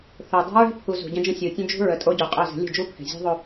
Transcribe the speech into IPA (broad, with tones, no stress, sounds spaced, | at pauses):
θ o˨ dˤ ɛ̤˦ ɹ ɛ̤˦ pʰ u˨ z ṳ˨ ɟ ə̃˦ d͡ʒ ə̃˦ sʲ u˨ tʲ ə̃˦ d͡ʒ ṳ˦ ɹ ə˨ tʼ o˦ ɟ u˨ qʼ œ˦˨ z ə̤˨˦ lʲ ə̤˦˨ d͡ʒ u˦ pʰ ɛ̤˨ zʲ ɛ̤˦ ðˤ o˦